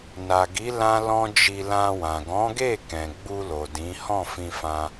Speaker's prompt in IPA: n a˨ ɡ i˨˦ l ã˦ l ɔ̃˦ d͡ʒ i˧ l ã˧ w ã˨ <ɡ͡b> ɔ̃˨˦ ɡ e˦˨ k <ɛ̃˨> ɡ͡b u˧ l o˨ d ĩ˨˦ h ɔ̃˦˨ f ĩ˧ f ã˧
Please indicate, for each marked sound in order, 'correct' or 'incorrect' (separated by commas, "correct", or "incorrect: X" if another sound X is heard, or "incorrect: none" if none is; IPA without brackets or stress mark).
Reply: incorrect: ɡ, correct